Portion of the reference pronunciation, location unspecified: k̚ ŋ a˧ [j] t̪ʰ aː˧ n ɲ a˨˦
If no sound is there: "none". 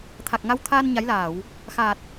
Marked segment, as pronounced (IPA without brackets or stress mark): w